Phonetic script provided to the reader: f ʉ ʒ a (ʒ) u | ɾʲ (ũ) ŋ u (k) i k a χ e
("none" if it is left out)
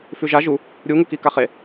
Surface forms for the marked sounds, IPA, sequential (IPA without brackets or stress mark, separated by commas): ʒ, u, k